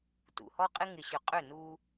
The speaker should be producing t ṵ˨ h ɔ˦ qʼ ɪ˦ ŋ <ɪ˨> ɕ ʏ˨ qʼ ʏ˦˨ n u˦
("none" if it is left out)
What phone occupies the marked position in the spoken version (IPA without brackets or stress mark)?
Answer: ɪ˨